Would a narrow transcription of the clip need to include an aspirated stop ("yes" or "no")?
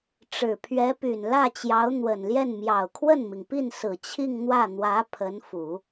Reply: yes